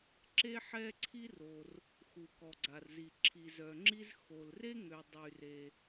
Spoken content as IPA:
ǁe˥ħɛ˥ǀʰi˥ro˩r | xu˩kɔ˩ɡ͡ǀa˩rzi˩ ǁʰi˩zœ˩ŋ͡ǁi˥z xo˩lre˥ŋø˩ dˤy˩re˩

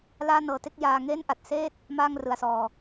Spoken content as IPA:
laː˥˩nɤː˧te˥˩k̚jaː˧ ŋe˥˩nʔa˨˩t̚seː˥˩t̚ | maː˥˩ŋrɯ˨˩a̯sɔː˨˩

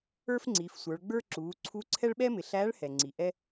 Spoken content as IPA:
ə˞˥fŋ͡ǀiː˩˧fsʷə˞˩˧ɭɡ͡bə˞˥ ǁuː˩˧ ǀʰu˧˥ǀʰɛ˥ɭɓɛ˥mɪ˩˧ ɬæː˧˥ɭhɛ˩ŋ͡ǀi˩ ʔɛ˧

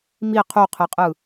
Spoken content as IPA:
mi qʰuqʰɯqʼɯ

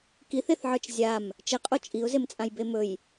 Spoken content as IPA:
kiθeθʕə˞t͡ʃ zʲam | t͡ʃɘqʼo t͡ʃʼiʊ̯zemt͡sʼãj bemɵj

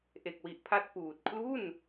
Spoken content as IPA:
ʔe˨˩k̚wi˨˩ʔpʰa˦˥t̚ puː˨˩t̚ kʰlu˥˩n

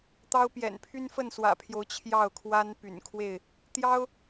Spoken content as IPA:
t̪ɑ˦ʊ̯pjɛ̰˨˩n pʰy˦nfə˥˨nswä̰˨˩pʰjo˨˦ʊ̯ t͡ɕʰjɑ˥˨ʊ̯kʰwa˦n py̰˨˩nkʰwe˥˨ɪ̯ | t̪jɑ˦ʊ̯

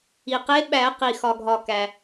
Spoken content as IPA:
i˩qe˨˥ɓæ˨˩˦ qi˩xɒ˩ɡʱɒ˩ kæ˩

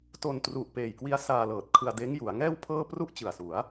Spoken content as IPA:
to˧ntru˨˩ʔpeː˨˩jkwi˦˥a̯ saː˧lɤː˨˩t̚kʰɯ˧a̯ deː˦˥ŋju˩˦a̯ŋɛː˥˩wpʰɤː˥˩ pru˥˩ʔt͡ɕɯ˨˩a̯su˩˦a̯

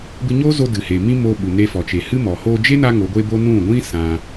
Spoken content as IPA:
bɨ˧ɲoː˦zo˧ dɨ˨he˨ mĩ˦ moː˧ɓu˨ ne˧fɔ˨t͡ʃe˨ hɨ˦mɔ˨ ho˧d͡ʒe˦na˧ ŋo˨˦ɡʷe˦bo˦ nũ˦˨ɡʷĩ˦ sã˧

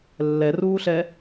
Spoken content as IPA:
lːɛruːɬɛ

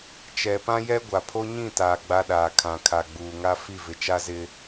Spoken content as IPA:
t͡ʃɛ˨pã˦jɛ˦ ɡʷa˨pʰo˦ɲĩ˦˨taː˨ ɡ͡ba˦ɗaː˨ kʰã˨kʰa˨ɡ͡buː˨ŋa˦ fi˦˨vɪ˨t͡ʃa˦zɪ˦

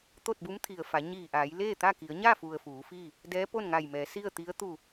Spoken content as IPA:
t̪o˥˨t̚bu˧˥mt̪ʰi˩ə̯fa˩˧ ɲiː˧˩ʔa˩˧j leː˥˨t̪a˥˨ki˩˧ə̯ ɲa˥˨fu˩ə̯ fuː˩˧fiː˥˨ | dɛː˧˥po˥˨nŋa˧˩jmɛː˩˧ si˥˨ə̯t̪i˧˥ə̯ t̪u˧˩

